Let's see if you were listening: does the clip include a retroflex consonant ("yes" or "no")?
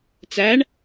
yes